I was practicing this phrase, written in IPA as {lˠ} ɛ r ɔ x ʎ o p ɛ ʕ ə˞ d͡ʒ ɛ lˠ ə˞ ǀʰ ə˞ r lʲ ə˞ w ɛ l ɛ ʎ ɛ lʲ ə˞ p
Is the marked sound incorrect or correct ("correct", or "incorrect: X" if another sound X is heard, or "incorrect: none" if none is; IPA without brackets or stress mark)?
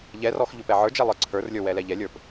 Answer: incorrect: ʎ